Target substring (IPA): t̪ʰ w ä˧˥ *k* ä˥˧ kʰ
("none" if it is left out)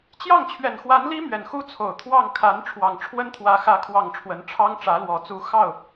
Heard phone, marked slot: x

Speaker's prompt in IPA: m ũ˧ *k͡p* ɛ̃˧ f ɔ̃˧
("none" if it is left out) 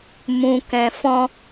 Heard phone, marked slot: k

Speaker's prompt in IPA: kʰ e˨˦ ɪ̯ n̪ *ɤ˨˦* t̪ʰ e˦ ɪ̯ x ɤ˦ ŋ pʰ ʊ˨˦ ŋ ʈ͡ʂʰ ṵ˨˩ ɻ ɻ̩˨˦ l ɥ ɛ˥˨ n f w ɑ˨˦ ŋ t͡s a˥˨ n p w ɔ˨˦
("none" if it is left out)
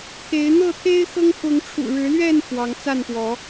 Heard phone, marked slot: ɤ˥˨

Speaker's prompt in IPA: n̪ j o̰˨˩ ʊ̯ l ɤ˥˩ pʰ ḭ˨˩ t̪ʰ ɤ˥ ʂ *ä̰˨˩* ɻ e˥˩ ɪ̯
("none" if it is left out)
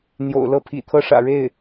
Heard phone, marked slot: ä̰˨˩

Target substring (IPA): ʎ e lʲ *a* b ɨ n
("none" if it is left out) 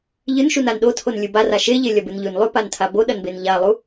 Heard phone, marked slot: ɐ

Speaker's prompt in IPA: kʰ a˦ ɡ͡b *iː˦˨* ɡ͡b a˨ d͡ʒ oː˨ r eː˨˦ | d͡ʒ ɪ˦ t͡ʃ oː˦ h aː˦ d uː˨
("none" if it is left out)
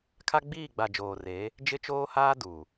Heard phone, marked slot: iː˦˨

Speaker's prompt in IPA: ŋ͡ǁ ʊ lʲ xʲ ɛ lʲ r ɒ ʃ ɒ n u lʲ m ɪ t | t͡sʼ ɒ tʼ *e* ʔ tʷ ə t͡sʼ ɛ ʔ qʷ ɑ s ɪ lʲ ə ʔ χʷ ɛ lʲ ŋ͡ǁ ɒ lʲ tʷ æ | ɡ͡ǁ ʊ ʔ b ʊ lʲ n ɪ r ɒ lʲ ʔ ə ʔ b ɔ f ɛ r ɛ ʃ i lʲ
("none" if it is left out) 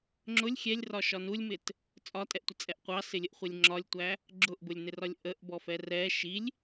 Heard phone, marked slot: ɛ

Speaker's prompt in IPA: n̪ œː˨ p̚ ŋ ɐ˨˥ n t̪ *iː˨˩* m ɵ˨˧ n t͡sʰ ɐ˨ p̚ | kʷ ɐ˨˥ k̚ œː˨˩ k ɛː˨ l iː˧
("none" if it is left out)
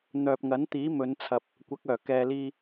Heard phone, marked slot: iː˨˥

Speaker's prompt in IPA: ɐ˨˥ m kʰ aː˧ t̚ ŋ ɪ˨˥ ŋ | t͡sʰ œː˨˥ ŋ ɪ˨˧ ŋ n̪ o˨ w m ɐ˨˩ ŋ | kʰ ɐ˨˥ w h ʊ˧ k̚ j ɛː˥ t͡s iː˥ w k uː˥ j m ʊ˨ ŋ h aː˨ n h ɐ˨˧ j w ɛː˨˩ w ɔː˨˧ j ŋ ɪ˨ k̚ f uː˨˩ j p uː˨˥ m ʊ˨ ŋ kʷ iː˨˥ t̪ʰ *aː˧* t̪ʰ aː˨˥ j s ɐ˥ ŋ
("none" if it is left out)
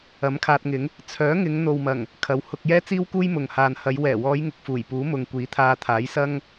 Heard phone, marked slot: aː˧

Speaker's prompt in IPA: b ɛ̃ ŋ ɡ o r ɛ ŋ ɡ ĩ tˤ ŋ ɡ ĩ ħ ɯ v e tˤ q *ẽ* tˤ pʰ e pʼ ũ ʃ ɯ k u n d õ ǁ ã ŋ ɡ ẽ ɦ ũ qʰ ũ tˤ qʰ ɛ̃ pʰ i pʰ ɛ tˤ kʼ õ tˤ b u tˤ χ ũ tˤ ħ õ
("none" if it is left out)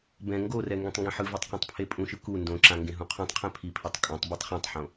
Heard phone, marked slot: ĩ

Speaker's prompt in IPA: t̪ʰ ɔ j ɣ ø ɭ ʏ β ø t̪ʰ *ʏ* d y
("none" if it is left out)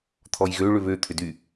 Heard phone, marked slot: ʏ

